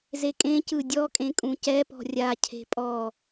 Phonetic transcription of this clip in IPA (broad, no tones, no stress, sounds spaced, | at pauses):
z e kʼ ẽ c ɯ dʲ ɔ kʼ ẽ kʼ ũ c ɛ p ɔ̤ rʲ a cʰ e̤ pʼ ɔ